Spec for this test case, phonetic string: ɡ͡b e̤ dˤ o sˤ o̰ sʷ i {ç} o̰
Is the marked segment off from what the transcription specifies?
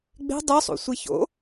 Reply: no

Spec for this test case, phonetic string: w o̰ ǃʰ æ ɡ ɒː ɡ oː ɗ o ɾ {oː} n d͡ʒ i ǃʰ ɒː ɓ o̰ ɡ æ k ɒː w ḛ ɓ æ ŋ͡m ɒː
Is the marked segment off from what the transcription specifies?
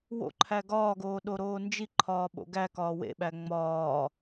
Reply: no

